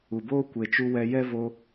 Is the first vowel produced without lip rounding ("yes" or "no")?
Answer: no